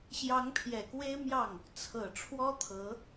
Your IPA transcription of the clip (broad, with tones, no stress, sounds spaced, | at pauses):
ɕ j ɑ˧˥ ŋ pʰ j ɛ˨˩ k w e˥ ɪ̯ m j ɑ˥˩ ŋ | t͡sʰ ɤ˨˩ ʈ͡ʂʰ w ɔ˥ t̪ʰ ɤ˧˥